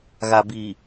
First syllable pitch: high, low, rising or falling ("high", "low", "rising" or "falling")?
low